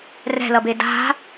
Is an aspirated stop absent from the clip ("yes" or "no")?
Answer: yes